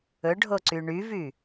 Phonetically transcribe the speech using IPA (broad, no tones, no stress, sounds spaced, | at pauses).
ɵ ɖʱ o ǀ y ɳ y v y